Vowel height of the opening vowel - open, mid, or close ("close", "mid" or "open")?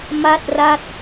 open